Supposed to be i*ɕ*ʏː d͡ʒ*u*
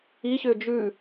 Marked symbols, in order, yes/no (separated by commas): yes, no